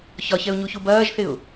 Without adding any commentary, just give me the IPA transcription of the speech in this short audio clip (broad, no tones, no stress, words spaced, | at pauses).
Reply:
çɒçɛʊ̯ɲuçu bɐːʒθɪʊ̯